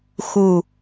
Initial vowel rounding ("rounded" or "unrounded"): rounded